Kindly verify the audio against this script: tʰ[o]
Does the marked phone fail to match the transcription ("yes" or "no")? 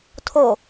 no